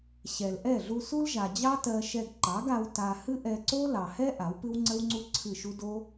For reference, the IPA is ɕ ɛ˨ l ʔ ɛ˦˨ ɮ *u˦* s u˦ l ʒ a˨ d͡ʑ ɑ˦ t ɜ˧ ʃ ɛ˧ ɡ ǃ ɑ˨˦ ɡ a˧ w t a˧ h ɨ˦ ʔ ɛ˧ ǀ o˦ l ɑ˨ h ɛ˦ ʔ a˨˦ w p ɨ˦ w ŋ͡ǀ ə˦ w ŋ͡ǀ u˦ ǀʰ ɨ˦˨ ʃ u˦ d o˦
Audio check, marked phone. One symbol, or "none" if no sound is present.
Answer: u˧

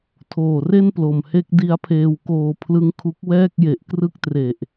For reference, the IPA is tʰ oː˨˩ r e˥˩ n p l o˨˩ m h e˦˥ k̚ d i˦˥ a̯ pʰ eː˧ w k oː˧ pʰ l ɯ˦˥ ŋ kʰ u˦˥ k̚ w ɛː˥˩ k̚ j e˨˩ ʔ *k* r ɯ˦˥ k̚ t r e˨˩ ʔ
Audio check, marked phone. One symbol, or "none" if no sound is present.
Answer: k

